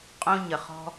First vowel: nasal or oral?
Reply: nasal